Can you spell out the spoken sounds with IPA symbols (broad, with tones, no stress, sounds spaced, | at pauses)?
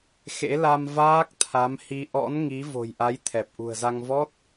x ḛ˧˥ l a˧ m v aː˦˥ k̚ t̪ʰ a˨˦ m h i˧ ʔ ɔ̰˧˥ n ŋ i˨˦ v o̤˨˩ j ʔ a˨˦ j t̪ʰ ɛ˨˩ p̚ ʔ ṳ˨˩ ə̯ z a˧ ŋ v ɔ˦˥ t̚